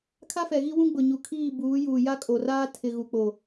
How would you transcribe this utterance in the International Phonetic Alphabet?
kʰ a˦ f ɛ˨ ɣ i˦ w ũ˦ ɡ͡b ʊ˨ ɲ u˨ kʰ iː˦˨ b uː˨˦ j uː˨ j a˦ kʼ o˨ r aː˦ tʰ ɪ˨ ɣ u˨ k͡p o˨

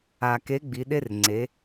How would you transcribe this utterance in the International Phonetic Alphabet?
a˨ k e˨˦ ɡ͡b i˨˦ ɗ e˦ r ŋ͡ǀ e˨˦

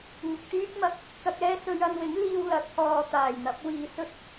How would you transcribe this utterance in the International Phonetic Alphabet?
ŋ ʊ˨ k̚ t̪ yː˥ k̚ m ɐ˧ k̚ | k ɐ˧ k̚ ɛː˥ s ɵ˧ ɥ ɐ˧ n w ɪ˨˥ ŋ l iː˧ w l ɐ˨˥ t̚ h ɔː˨ t̪ aː˨˩ j n̪ ɐ˨˥ p̚ w iː˨ s ɵ˥ t̚

